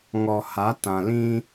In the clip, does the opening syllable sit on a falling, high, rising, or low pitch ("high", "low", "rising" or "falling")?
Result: low